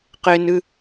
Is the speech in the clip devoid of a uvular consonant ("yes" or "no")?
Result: no